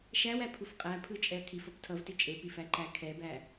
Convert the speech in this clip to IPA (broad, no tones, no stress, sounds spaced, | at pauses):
ʃ æ w æ pʰ u f qʼ æ pʰ ɯ t͡ʃʼ ɛ ɐ̯ kʰ i f ʌ p tʰ ʌ v t i t͡ʃʼ e p i f æ ǃ æ kʰ ɛ b æ